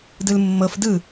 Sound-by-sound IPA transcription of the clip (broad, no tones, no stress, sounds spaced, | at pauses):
d ɯ l mː ɤ f d ɯ